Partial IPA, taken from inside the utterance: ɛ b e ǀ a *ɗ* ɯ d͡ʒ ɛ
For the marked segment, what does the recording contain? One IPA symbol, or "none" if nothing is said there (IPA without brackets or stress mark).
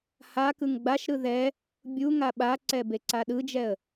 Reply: ɗ